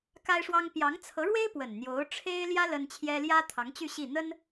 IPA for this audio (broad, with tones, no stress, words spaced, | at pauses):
ka˥ɪ̯ʂwɑ˥ŋ pjɑ˧˥ŋt͡sʰɤ˧˥ɻwe˥ɪ̯ pwə˨˩nn̪jo˧˥ʊ̯ ʈ͡ʂʰe˥ɪ̯ljä˥ lə˥nt͡ɕʰjɛ˥ ljä˥t̪ʰɑ˧˥ŋt͡ɕy˥˧ ɕi˥˩ n̪ə˥n